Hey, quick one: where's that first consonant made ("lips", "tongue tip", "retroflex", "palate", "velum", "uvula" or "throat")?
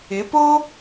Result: lips